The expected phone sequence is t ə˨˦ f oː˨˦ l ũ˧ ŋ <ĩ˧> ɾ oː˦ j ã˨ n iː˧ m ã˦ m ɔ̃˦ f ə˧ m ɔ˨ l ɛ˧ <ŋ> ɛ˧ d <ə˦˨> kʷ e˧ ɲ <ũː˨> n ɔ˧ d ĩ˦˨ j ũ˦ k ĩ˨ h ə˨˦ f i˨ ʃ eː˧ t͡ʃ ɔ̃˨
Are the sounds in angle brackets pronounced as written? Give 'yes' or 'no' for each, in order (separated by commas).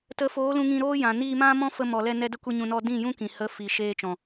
yes, no, no, no